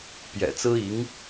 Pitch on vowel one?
low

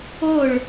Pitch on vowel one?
falling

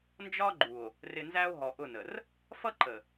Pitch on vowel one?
high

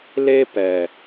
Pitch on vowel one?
high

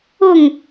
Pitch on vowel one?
falling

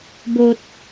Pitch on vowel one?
low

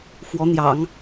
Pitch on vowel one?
rising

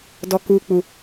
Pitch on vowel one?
high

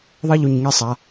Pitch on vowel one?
falling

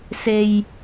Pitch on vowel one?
low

